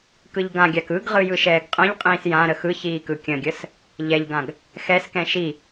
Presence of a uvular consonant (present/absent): present